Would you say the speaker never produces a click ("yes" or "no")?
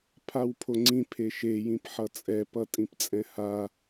no